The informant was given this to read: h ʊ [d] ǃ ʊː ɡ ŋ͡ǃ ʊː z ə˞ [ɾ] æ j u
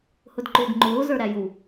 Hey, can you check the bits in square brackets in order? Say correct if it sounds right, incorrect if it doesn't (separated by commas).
correct, correct